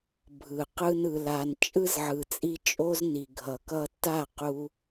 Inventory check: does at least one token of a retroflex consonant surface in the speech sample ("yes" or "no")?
no